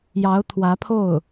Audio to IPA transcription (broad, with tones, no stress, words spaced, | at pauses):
jɑ˧˥ʊ̯t̪ʰwä˧˥pʰo˥˩ʊ̯